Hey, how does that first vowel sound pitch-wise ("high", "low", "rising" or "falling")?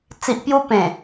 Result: low